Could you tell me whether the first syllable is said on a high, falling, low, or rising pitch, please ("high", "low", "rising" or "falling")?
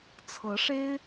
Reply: rising